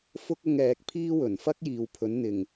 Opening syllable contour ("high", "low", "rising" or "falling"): high